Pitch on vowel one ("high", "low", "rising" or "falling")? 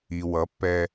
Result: low